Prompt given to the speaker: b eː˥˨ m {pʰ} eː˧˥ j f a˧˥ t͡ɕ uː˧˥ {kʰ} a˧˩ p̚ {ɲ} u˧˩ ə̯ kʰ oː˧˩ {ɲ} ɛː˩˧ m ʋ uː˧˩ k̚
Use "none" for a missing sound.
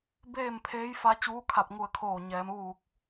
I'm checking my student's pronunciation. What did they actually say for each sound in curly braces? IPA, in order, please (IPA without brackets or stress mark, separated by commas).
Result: pʰ, kʰ, ŋ, ɲ